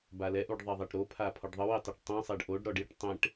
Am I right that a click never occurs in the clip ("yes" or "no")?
yes